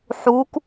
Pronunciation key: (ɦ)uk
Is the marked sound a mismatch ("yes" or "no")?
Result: yes